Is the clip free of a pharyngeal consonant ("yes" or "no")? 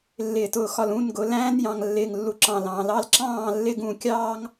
yes